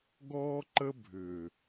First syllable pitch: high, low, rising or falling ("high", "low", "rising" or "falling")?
high